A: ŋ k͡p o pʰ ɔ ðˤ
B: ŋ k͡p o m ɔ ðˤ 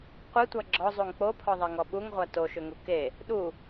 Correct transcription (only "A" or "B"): A